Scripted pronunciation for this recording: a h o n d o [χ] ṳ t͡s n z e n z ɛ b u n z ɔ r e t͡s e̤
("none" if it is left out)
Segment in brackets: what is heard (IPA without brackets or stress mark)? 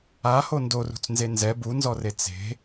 r